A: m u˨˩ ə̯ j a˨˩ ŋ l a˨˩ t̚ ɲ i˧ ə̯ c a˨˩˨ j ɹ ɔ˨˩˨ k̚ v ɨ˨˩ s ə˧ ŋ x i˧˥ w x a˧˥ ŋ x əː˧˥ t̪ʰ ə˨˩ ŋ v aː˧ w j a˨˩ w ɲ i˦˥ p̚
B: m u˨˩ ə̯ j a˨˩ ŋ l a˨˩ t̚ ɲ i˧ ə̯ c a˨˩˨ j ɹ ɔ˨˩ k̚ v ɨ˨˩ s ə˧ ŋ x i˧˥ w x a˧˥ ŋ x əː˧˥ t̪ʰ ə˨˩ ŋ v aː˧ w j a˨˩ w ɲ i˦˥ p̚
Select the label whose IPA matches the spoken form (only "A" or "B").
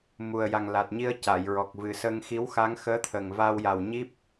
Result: B